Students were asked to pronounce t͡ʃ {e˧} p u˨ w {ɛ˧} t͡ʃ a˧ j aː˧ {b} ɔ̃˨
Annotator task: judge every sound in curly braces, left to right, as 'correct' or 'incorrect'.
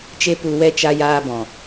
correct, correct, correct

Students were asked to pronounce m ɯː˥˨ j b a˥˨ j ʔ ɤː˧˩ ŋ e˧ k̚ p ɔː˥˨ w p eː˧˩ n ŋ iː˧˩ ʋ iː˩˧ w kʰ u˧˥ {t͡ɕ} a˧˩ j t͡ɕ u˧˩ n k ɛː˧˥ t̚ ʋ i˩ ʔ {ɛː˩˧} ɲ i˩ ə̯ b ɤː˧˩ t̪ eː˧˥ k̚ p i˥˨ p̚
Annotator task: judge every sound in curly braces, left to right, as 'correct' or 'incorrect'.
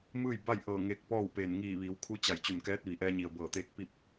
correct, incorrect: ɛː˧

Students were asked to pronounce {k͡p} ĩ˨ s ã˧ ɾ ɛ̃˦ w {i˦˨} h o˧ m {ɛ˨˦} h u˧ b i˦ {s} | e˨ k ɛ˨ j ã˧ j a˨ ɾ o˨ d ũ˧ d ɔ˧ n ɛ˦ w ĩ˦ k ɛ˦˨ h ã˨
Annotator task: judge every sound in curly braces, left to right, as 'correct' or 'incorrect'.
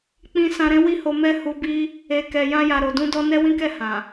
correct, correct, incorrect: ɛ˦, incorrect: none

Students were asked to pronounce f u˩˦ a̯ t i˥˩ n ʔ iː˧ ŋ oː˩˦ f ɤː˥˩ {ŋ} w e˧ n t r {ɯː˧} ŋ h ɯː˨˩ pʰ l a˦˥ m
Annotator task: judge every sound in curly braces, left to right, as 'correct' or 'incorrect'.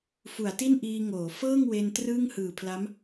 correct, incorrect: ɯː˥˩

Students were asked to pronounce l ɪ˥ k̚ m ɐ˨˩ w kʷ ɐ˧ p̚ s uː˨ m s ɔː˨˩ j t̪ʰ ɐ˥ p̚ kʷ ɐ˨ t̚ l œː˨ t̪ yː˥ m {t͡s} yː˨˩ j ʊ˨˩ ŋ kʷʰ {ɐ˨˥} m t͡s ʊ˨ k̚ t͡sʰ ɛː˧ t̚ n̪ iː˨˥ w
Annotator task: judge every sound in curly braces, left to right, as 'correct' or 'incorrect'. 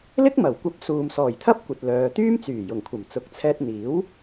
correct, incorrect: ɐ˨˩

